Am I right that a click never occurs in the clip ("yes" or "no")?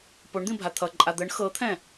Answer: no